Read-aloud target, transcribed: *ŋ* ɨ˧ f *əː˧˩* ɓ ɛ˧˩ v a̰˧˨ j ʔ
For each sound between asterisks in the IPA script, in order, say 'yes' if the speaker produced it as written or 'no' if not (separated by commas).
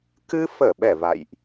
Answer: no, yes